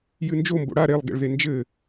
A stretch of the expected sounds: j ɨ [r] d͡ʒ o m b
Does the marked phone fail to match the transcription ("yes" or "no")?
yes